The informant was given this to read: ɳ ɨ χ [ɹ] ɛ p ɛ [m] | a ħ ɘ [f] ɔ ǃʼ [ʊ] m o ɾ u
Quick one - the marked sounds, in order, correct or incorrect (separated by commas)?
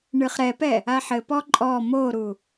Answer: incorrect, incorrect, incorrect, incorrect